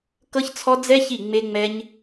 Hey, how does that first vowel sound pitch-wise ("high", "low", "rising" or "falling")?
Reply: high